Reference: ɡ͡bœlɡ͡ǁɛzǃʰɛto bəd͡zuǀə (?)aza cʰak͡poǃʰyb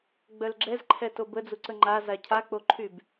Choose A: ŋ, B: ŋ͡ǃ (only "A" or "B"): B